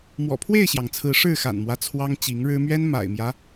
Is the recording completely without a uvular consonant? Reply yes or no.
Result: yes